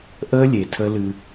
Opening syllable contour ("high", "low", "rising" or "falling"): high